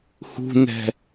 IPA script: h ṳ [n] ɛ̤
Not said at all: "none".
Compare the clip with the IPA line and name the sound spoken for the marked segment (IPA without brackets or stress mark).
n